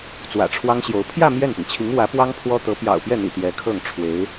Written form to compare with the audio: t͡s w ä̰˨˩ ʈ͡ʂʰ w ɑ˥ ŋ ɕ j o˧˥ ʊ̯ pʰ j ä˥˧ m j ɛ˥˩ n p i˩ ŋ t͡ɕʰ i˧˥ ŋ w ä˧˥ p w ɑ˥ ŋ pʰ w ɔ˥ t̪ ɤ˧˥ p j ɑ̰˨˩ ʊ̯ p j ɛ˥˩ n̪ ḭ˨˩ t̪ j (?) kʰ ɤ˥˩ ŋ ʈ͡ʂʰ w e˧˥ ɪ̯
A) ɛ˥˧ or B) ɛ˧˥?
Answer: B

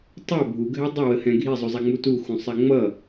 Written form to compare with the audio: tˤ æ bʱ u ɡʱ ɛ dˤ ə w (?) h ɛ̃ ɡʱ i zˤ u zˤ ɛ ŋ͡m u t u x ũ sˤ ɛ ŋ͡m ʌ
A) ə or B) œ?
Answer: A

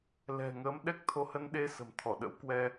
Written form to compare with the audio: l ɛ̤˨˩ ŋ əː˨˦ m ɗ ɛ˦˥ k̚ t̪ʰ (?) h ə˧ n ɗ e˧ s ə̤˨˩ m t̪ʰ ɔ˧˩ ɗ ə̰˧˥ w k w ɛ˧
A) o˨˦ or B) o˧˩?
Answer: A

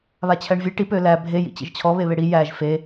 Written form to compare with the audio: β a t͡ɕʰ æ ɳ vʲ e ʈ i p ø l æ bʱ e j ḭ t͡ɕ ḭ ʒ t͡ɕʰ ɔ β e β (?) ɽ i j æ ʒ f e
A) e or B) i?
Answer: A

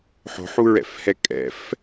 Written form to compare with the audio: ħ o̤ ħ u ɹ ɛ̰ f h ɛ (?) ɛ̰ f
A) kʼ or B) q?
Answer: A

